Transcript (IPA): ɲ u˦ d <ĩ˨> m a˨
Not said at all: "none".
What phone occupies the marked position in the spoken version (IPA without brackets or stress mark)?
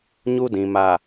ĩ˨